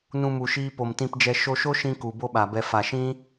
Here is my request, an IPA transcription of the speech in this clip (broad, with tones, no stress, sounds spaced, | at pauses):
n ũ˧ m u˨ ʃ iː˧ p o˨ m t ĩ˧ p d͡ʒ ɛ˧ ʃ o˧ ʃ o˦ ʃ ĩ˧ k u˨ b o˦ ɓ a˨ b ɛ˧ f a˨ ʃ ĩ˦